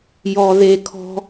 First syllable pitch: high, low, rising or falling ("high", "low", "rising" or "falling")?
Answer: low